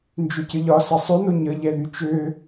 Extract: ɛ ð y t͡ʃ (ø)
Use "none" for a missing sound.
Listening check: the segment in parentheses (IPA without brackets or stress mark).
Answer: ø